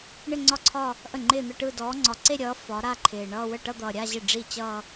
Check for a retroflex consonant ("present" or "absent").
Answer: present